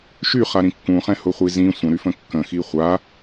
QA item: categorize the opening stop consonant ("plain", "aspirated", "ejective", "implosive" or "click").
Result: plain